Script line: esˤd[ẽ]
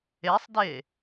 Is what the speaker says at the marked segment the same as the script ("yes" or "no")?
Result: no